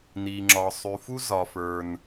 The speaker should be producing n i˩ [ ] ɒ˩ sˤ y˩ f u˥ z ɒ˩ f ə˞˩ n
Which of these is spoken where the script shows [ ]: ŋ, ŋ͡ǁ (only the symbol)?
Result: ŋ͡ǁ